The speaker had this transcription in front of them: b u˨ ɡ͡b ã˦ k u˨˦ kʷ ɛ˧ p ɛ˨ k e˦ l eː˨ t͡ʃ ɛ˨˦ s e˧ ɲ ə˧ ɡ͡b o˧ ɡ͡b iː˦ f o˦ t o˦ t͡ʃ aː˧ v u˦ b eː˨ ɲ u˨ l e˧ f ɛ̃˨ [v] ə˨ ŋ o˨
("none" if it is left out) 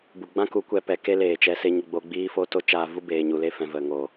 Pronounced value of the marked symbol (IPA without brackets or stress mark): v